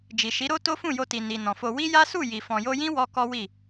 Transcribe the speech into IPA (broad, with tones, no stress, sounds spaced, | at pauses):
d͡ʒ i˨ ʃ i˨˦ ɾ o˦ t o˦ f ũ˦˨ j o˧ t i˨ n i˨ n ɔ̃˨ f o˧ w i˦ j a˦ s u˦˨ j i˨ f ɔ̃˨ j o˧ j ĩ˦ w ɔ˧ k ɔ˦ w i˦˨